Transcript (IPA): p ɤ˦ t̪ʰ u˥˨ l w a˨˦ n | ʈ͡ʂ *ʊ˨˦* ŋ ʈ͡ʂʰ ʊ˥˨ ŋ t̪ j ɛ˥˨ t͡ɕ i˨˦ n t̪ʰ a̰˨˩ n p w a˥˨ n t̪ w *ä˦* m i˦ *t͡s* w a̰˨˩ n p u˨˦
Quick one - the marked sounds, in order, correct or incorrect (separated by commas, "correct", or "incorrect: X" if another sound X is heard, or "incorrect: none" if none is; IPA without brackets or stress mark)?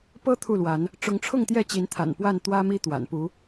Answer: correct, correct, incorrect: t̪